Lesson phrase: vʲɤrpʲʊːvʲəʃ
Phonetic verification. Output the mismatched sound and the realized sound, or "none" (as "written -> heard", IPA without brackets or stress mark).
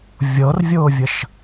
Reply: pʲ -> vʲ